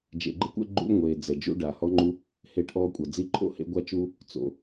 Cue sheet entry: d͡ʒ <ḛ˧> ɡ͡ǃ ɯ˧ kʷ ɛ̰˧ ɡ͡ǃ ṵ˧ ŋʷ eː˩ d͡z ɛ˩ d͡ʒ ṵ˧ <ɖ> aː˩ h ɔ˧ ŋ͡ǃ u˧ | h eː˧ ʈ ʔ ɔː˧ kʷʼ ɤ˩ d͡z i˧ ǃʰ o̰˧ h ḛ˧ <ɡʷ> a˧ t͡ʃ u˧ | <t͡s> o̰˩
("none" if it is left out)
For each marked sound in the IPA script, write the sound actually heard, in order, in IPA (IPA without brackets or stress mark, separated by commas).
ḛ˩, ɖ, ɡʷ, t͡s